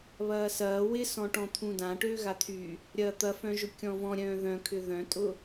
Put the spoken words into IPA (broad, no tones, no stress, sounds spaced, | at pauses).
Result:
β ɐː s ɐː w ɪ s ɔ̃ ʈ ɔ̃ t̪ʰ ũ d ã ʈ øː ɣ a t̪ʰ y | ɾʲ ɐː t̪ ɐ f œ̃ ʒ ʊ kʲ ɔ̃ v ɔ̃ ɾʲ œ̃ː ð œ̃ kʰ ʏ ð œ̃ tʼ ʊ